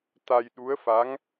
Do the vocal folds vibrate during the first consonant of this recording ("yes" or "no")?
no